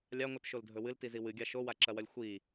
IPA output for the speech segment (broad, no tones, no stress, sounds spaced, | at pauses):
lʲ a ŋʷ ɨ t ʃ o l dʱ ɵ w ɨ l t i z i w ɨ ɡʲ a ʃ o w a ǁ ɐ w ɐ lʲ xʷ i